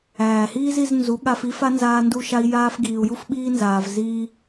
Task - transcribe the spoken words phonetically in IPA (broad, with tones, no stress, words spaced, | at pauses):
æː˨hiː˦zi˧z nzu˨˦ɠa˧f i˦fa˦ nzaː˧ndu˧ʃa˧i̯ jaː˧f ɡiː˨u̯ju˦fɓiː˦nzaː˨v ziː˦